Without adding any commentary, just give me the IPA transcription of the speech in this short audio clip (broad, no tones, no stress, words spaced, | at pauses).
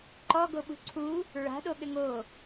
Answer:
ǃɔɡoɓṳ ǀʰu | ɹa̤ɗoɠɘ ŋo